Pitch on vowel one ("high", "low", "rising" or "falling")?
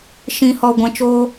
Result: low